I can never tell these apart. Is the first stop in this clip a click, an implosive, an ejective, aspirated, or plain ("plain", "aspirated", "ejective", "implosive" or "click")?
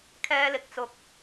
aspirated